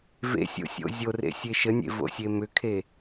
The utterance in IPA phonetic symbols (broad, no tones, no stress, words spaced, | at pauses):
vḛsʲo̰sʲo̰ zʲorḛsʲe ʃənʲḛvo̰sʲe mʏkʰe